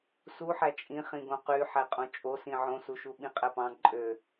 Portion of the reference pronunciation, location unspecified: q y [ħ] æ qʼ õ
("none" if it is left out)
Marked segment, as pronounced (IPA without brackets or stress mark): ħ